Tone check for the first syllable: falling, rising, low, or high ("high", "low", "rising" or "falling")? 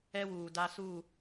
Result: high